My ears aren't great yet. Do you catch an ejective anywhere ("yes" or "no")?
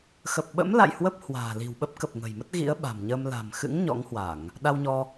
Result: no